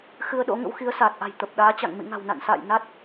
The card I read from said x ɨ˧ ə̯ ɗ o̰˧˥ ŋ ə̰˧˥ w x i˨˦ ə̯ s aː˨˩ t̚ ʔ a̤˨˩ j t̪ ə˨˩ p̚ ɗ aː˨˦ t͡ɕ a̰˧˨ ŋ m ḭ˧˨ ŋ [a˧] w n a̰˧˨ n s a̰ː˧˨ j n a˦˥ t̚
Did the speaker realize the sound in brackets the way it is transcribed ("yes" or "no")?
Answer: no